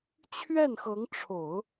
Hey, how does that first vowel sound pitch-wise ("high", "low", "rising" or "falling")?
falling